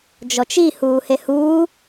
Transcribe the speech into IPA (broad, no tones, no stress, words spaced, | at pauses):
d͡ʒɔt͡ʃi huːhehuː